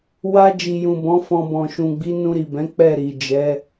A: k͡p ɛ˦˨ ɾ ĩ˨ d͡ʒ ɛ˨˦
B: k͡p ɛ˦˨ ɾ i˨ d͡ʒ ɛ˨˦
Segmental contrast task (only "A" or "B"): B